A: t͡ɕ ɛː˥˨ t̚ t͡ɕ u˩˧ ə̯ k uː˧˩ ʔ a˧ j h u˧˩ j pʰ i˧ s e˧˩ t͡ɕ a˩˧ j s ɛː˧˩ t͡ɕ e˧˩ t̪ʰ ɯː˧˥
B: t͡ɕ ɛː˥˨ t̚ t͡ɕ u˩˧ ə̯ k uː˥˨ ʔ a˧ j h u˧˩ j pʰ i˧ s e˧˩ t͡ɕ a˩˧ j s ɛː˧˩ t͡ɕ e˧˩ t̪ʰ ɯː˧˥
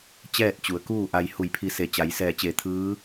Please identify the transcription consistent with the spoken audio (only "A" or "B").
B